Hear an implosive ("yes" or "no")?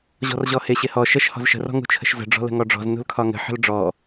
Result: no